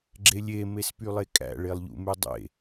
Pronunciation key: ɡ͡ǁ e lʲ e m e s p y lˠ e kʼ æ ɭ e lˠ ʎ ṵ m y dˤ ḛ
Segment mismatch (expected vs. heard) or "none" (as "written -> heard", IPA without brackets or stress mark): æ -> æ̰